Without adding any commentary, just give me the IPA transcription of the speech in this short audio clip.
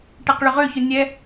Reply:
ʈ ɛ q ɭ ʏ ʁ ø ç ʊ nʲ ɛ

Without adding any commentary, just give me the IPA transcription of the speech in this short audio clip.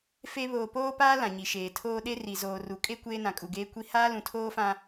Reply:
f e˦ β oː˨ p oː˦ p aː˦ l ã˨ ɲ i˨ ʃ eː˨ tʰ oː˦ ɗ e˦ r i˨ z oː˨ r u˨ kʼ e˦ kʷ eː˦ n ã˨ kʼ u˨ ɡ eː˦ kʷ i˦ h aː˦ l ũ˨ tʰ oː˦ f ã˦

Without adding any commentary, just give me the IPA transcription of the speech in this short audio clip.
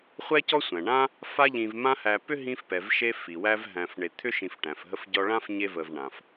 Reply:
χʷ ɛ˦ c ɔ˥ sʷ æ̃˩ ɳ ã˥ | f a˦ ʎ ĩ˨ v m ã˦ h æ˨ p ʏ˥ ɦ ĩ˦ f p ɛ˩ v ʃ e˦ f i˩ w æ˦ v ɦ æ̃˨ f ɳ e˨ t̪ʰ ʏ˥ ʃ ĩ˨ f ʈ æ̃˩ f ɦ ə˦ f ɟ ɔ˦ ɭ ã˥ f ɲ e˦ v ə˨ v ɳ ã˩ f

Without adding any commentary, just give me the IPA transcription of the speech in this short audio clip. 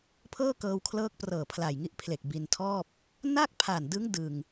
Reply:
pʰ ɤː˥˩ k ɤː˧ w kʰ l ɤː˦˥ k̚ p r ɤː˨˩ pʰ l a˨˩ j ŋ i˦˥ ʔ pʰ l e˨˩ k̚ b i˧ n tʰ ɔː˥˩ p̚ | n a˥˩ k̚ pʰ a˨˩ n d ɯ˦˥ ŋ d ɯ˧ ŋ

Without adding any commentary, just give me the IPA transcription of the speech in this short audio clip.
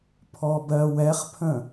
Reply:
pʰ ɔ b ɜ w ɛ χ pʰ ə̃

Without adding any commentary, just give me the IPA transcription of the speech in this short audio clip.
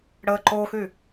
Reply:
ɽ ə ǃ o x y

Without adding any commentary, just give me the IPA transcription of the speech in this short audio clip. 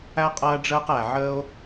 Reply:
æ˥ qʼ ɐː˥ ɖ͡ʐ əː˥ q æ˩ ʕ əː˥ o̯

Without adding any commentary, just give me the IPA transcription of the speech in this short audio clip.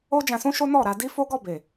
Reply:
o˦ d͡ʒ ã˧ s ũ˦ ʃ o˦ n ɔ˦˨ ɾ a˧ d i˦ f o˦ ɡ ɔ˦˨ b e˨

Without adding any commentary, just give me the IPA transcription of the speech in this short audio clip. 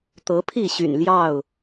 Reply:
t̪ ɤ˨˦ pʰ i˥˨ ɕ y̰˨˩ n l j ɑ˥˨ ʊ̯

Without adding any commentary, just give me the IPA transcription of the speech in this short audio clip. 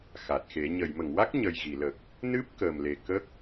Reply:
x a˨˩ t̚ x e˨˩˦ ɲ ə˨˩˨ j m ə˨˩˨ ŋ w a˦˥ k̚ ɲ ə˨˩ j ɣ i˨˩˨ l ə˨˩ k̚ | n ɨ˦˥ p̚ k əː˨˩ m l e˨˩ k ə˦˥ k̚

